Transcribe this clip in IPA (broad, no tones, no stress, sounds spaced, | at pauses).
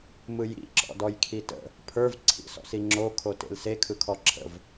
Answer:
m ɯ j ḭ ǁ ɔ̰ d ɔ j kʰ i t ə̰ | pʰ ə˞ v ǀʰ ḭ s ɔ̰ s i ŋ͡ǁ o kʰ o t ḛ l s e kʰ ɯ kʰ ɔ ǁʰ ə̰ v